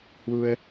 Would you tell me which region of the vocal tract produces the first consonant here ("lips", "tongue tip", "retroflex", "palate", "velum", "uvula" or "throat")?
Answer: throat